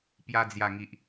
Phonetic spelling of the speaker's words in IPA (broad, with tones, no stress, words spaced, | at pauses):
pja˧d͡zja˨˩ŋi˨ʔ